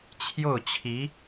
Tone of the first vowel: falling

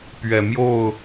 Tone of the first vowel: low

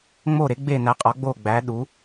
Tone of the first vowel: falling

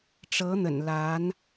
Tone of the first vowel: rising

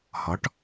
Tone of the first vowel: rising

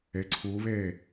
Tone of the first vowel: rising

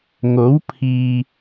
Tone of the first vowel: rising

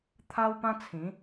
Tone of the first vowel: high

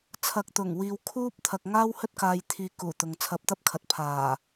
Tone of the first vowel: low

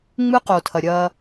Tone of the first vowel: high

